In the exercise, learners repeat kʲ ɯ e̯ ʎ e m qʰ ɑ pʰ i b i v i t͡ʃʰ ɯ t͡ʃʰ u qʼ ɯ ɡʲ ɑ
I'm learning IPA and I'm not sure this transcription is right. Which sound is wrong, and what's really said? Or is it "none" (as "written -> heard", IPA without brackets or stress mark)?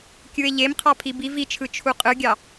none